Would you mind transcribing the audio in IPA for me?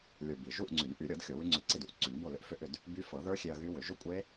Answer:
lʲ ə˞˨˩ b i˨˩ ʒ u˥˨ ʔ ŋ͡ǀ y˨˩˦ n ʔ y˨˩˦ ɾʲ ɤ˨˩˦ d xʲ o˨˩˦ w y˦˥ ŋ͡ǀ ʏ˧ ǀ i˥˨ d u˨˩ ʔ ǀ y˨˩˦ n b o˥˨ l ʏ˦˥ ʔ f ʏ˥˨ ʔ ʏ˥˨ d | b y˦˥ f ɤ˨˩˦ ð ə˞˦˥ xʲ e˧ ɐ̯ ɣ y˦˥ w ʏ˨˩˦ ʒ ʏ˥˨ kʷʼ e˦˥

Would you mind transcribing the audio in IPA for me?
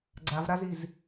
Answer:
ɡ͡ǀ a v ɾ a z i z

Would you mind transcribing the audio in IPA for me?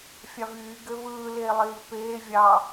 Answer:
fʲ ɑ v yː ɡ ø v ɯː l eː lˠ iː v p eː vʲ ɑ

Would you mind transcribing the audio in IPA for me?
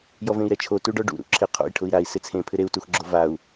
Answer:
j ɔ v ẽ i̯ ɾ ɛ t͡ʃʰ o t u ɖ ɔ ɖ ṵ ɾ ṵ ǁʰ ɪ qʰ o̰ i̯ ʈʰ ʊ i̯ ɾ a i̯ s ɪ t͡sʰ ẽ pʰ ɪ ɾ e u̯ t u x ɡ͡ǁ o v a u̯

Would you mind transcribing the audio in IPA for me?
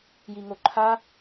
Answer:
j i ŋ o ǃʰ a

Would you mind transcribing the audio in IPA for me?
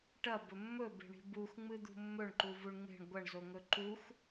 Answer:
ʈ ɐ b ɵ mː ɵ b e̤ ɳ i̤ b u x ŋ͡m ɨ d̪ ṳ mː ɵ ɳ ǃ u v u ɳ ŋ͡m e̤ ɳ ɡʷ ɐ ɳ z o ŋ ɵ ǃ u x

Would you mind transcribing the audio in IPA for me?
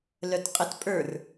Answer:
l œ t qʼ ɘ t pʼ ə˞ r

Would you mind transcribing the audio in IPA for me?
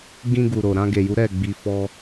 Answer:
ɡ ĩ˧ ɡ u˨ ɾ o˨ ɾ ã˧ ɡ e˨ j u˨˦ ɾ ɛ˦˨ ɡ͡b i˧ f ɔ˦

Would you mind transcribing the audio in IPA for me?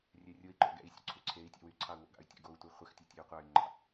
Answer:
rʲ ɛ rʲ o i̯ ǃ o̰ ɡ ɛ̰ i̯ sʲ o̰ ǀʰ y ǀʰ e i̯ tʲ ɑ̰ w y ǀʰ ɑ u̯ w o̰ ɡ ɑ̰ y̯ tʲ o̰ ɡ o u̯ tʷ ɛ χʷ ɛ x tʲ o tʲ e u̯ qʷ ɑ y̯ ŋ͡ǃ ɑ̰

